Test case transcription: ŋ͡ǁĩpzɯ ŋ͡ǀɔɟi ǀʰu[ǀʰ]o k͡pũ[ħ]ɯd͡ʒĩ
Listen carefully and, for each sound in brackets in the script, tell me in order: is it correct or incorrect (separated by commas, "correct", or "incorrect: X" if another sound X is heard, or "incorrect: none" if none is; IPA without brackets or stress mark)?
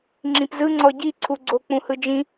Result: incorrect: ɡ͡ǀ, incorrect: h